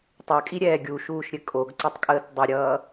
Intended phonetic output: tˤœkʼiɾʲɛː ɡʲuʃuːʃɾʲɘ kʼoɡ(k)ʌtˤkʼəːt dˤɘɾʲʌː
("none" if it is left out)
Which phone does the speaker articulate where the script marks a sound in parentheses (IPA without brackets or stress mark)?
ǀ